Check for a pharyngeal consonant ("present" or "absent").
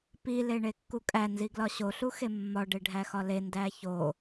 absent